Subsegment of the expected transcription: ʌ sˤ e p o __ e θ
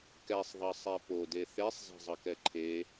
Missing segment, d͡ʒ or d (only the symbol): d